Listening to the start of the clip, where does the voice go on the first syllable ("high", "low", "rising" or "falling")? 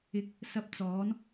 rising